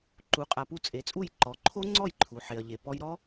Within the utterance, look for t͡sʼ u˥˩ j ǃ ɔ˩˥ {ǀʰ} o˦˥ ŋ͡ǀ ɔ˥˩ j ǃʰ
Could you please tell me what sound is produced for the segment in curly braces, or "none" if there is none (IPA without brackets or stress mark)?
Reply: ǃʰ